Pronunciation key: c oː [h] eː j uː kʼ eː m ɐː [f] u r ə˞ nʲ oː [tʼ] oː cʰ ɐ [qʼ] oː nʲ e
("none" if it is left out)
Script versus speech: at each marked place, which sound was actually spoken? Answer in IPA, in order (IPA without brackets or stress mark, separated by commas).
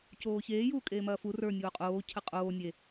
ç, f, qʼ, qʼ